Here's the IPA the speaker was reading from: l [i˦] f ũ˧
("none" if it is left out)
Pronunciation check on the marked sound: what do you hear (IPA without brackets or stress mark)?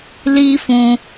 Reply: i˦